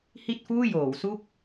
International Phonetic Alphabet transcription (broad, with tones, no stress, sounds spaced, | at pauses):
h i˥˩ t̚ f uː˥˩ j oː˩˦ w s u˥˩ k̚